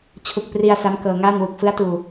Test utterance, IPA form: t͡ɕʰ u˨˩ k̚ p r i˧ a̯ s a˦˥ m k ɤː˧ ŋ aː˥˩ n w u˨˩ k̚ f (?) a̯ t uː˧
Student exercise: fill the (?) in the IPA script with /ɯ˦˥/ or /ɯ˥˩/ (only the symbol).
ɯ˦˥